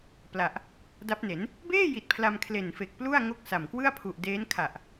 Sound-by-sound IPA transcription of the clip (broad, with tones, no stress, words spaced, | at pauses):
pla˨˩ʔ | da˦˥p̚ne˩˦n | beː˥˩ji˨˩t̚ pʰla˧mkʰle˨˩nfe˨˩k̚plu˥˩a̯ ŋo˥˩k̚sa˨˩m kwɯ˥˩a̯pʰu˨˩ʔdeː˦˥n kʰa˨˩ʔ